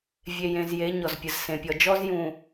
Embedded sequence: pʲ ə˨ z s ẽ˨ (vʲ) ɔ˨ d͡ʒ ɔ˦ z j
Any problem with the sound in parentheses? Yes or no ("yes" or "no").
yes